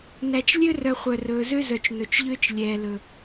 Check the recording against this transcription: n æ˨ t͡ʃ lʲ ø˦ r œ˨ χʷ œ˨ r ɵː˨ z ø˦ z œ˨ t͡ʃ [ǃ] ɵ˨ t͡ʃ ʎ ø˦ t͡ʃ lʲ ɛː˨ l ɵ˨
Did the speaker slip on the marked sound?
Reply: yes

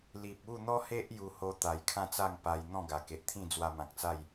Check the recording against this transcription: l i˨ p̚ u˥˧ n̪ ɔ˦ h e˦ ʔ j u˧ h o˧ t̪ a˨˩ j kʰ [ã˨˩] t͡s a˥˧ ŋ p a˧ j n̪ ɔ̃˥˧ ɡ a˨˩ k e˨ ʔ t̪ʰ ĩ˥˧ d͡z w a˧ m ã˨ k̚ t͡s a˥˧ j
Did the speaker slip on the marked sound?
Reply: yes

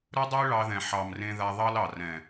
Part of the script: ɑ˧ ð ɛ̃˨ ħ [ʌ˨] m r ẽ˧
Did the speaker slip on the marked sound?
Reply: yes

